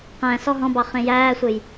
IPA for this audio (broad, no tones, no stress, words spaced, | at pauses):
qæ̃ sɔɦɔ̃bɑ χẽjæːsʷej